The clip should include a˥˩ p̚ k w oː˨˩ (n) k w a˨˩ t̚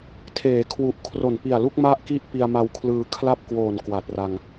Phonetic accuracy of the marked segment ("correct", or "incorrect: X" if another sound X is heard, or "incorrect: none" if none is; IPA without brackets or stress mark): correct